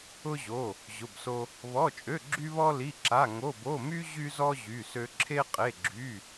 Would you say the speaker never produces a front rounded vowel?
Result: no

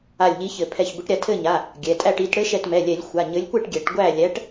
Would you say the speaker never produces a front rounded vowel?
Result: yes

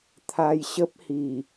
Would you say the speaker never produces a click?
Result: yes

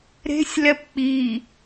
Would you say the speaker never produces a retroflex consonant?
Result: yes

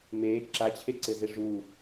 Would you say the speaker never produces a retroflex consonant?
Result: no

